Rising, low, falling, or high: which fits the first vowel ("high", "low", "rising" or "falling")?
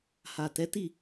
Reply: low